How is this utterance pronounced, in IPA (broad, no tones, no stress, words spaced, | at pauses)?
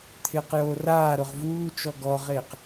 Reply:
t̪ʰɪːqjoːraːɾʊʁ vuː t͡ʃɔɡɔʁeːq